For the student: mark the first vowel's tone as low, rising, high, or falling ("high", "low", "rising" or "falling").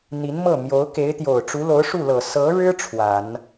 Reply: rising